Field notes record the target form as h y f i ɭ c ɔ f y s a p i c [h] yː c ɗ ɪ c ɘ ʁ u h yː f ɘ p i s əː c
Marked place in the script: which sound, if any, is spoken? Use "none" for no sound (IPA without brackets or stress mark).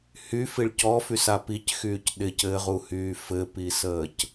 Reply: x